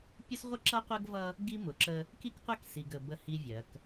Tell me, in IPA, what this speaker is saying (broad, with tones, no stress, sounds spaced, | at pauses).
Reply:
pʲ ʊ˦ s ʁʷ ə˦ ǁ ʌ˦ qʷ ɜ˦ ɡ v ʌ˦ | ɡ i˦ m ʊ˨ ǁ ə˦ | k i˦ k qʷ æ˦ k s i˨ ɡ ə˨ b ə˦ h i˦ vʲ ɜ˨˦ k